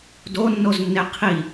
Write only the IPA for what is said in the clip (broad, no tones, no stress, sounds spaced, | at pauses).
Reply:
d o nː o z nː e qʰ i